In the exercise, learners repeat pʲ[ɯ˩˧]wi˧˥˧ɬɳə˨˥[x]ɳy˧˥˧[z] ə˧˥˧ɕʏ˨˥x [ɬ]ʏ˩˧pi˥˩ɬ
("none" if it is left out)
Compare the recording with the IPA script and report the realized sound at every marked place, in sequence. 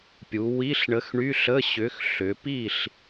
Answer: u˩˧, x, ɬ, ɬ

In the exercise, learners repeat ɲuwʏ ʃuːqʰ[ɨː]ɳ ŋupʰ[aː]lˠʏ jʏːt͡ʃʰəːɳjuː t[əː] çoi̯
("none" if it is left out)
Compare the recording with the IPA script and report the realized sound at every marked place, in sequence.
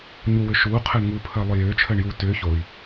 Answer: əː, əː, ʏː

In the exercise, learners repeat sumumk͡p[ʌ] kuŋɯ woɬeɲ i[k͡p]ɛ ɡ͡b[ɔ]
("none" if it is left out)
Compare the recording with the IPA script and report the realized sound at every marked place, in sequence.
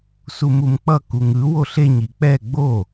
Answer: ʌ, k͡p, o

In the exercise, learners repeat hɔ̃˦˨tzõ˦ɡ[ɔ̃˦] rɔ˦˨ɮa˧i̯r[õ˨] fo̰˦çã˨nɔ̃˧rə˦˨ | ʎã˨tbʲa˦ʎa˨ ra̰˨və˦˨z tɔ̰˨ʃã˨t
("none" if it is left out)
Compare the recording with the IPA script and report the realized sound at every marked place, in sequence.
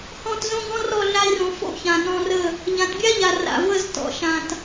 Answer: ɔ̃˦, õ˨

